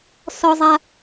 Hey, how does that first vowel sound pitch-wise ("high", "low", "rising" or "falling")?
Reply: high